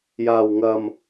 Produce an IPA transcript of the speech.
j aː˨˩ w ŋ ɐ˨˩ m

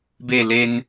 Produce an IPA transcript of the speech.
b e˥˧ l e˦ n

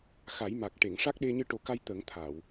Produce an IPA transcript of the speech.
x a˨˩˦ j m a˨˩ k̚ ʈ e˨˩˨ ŋ ʂ a˦˥ k̚ ɗ e˧ ɲ ɨ˧ ʈ o˨˩˦ k a˧ j t̪ ə˨˩˦ ŋ t̪ʰ a˨˩˨ w

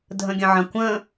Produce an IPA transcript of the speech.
dʱ ə̃ ɡʲ ə̃ ʕ ɐ̃ kʷ ə̃

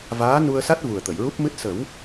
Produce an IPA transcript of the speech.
v aː˧˥ n u˧ ə̯ s a˦˥ t̚ v u˨˩ ə̯ t̪ ə˨˩˨ j ɹ u˦˥ p̚ m ɨ˦˥ t̚ s ə˨˩˦ w

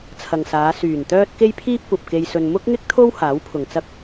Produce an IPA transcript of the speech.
t͡sʰ ɐ˨ ŋ s aː˨˧ s yː˨˩ n t̪ œː˥ t̚ k e˥ j pʰ iː˥ p̚ kʷ ɐ˨ p̚ k e˧ j s ɵ˧ n m ʊ˥ k̚ ŋ ɪ˥ k̚ t̪ʰ o˥ w h aː˨˥ w pʰ ʊ˨ ŋ t͡s ɐ˥ k̚

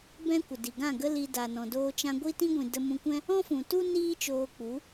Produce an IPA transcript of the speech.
b ɛ̃˧ kʷ ə˨ d i˨ ɡ ã˦˨ ɡ ə˦ l i˧ d a˨ n ɔ̃˨ d oː˧ t͡ʃ ã˧ ɡʷ i˦ t ĩ˦ ɡʷ ĩ˨ d ə˧ m ũ˧ kʷ ɛ̃˦ | ɔ̃˦ f ũ˨ t u˦ n iː˦ t͡ʃ oː˧ k͡p u˨˦

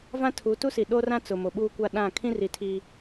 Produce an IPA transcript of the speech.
v ã˦ tʰ u˨˦ t u˦ s i˨ ɗ o˦ r ã˦ t͡s ʊ˨ m o˨ ɓ uː˦ kʷ a˦ ɗ ã˦˨ kʰ ĩ˦ r i˨ tʰ iː˦

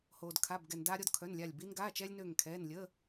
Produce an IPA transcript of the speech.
h oː˩ d kʰ a˩˧˩ b ɡ ɛ˩ n d aː˧ ɾʲ ɔ˧ d kʰ œ˩˧˩ n lʲ a˧˩ lʲ b i˧ n ɡ aː˩˧˩ t͡ʃ ɛː˧ lʲ n øː˧˩ ŋ kʰ ɛː˩˧˩ n lʲ ə˩˧˩

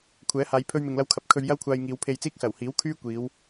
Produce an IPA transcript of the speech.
kʷʰ ɛː˨˥ h aː˨˧ j pʰ ɵ˥ ɥ m ɪ˧ ŋ l ɐ˥ w kʰ ɐ˧ p̚ kʰ ɵ˧ ɥ j ɐ˥ w kʷʰ aː˧ j ŋ iː˨˧ w pʰ e˧ j t͡s iː˥ k̚ s ɐ˨˩ w h iː˨˥ w kʰ yː˥ kʷ iː˨˧ w

